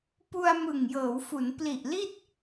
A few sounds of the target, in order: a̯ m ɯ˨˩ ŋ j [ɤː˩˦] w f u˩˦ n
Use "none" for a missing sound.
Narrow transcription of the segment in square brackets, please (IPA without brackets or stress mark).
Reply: ɤː˩˦